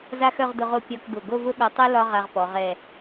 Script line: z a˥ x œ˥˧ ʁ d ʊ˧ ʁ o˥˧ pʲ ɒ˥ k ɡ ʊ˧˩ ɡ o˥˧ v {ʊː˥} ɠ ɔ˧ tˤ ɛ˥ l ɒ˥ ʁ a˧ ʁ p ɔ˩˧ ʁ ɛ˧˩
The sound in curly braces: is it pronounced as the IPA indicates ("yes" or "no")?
no